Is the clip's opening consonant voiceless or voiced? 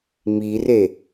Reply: voiced